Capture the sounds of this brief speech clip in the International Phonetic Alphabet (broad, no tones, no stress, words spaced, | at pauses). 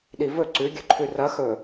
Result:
ɗivɵ ǀʉɡʲɵǃʰʉ rɐ xɵ